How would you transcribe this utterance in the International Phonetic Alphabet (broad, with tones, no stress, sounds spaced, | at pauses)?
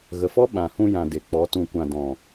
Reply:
ɣ ə˨ f ɔ˦ ɓ ã˨ h ũ˧ j ã˨ d e˨ k͡p ɔ˨˦ t ũ˨ kʷ ã˨ d ɔ̃˨